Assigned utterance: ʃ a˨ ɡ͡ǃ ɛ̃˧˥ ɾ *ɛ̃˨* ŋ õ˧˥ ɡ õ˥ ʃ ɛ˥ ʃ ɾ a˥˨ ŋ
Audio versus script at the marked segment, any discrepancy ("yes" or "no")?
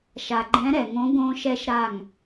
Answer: yes